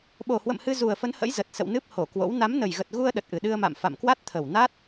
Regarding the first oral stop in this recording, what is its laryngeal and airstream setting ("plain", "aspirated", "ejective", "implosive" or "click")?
implosive